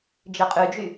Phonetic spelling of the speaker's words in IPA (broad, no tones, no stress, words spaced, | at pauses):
d͡ʒɪqʼyd͡ʒy